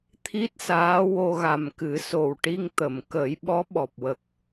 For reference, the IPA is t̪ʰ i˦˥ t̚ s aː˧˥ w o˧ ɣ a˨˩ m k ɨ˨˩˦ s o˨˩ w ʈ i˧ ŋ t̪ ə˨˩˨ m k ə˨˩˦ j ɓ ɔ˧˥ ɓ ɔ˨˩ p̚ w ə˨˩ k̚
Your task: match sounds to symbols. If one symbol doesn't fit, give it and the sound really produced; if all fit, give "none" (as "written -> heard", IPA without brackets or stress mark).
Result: none